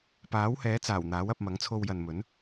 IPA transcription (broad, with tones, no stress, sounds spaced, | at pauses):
p aː˨˥ w h ɛː˨˥ t͡s aː˨˩ w n̪ aː˨˥ w ɐ˧ p̚ m ɐ˨˥ ŋ t͡sʰ o˧ w j ɐ˨ n m ɵ˨˥ n